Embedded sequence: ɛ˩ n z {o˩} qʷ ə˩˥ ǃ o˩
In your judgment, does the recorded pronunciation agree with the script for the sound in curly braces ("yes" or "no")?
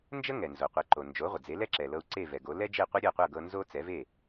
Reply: yes